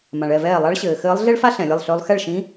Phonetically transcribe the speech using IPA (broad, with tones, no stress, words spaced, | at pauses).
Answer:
mã˩ɭɛ˥˩vɛː˥˩ lˠa˧˥ɭɕɘː˩xɘː˧˥lˠ ɮe˥ɭfa˥ ɬɛ̃˩lʲɘ˥˩lˠɬø˧˥lˠ xɛ˥˩ɭʃĩ˧˥